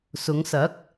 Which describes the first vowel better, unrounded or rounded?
rounded